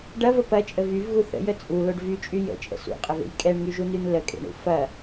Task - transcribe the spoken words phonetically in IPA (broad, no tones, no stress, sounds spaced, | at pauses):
ɖ ɐ v ə p ɐ t͡ʃʼ ə v y v ɣ u θ ə̰ j ə t͡sʼ u l o ɖ v y t͡ʃʼ y j ə̰ t͡ʃʼ ə̰ s ṵ qʼ ə v ḛ j kʼ ɛ ɳ ŋ y ʒ u n y n l ə kʼ ḛ ɳ ṵ f ɐ